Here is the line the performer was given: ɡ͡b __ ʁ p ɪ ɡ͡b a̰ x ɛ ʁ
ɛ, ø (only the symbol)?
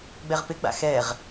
ɛ